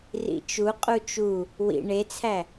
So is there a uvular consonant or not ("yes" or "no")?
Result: yes